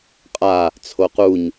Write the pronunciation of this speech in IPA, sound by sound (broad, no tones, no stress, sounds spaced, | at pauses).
qʼ a | t͡sʰ o q u ɲ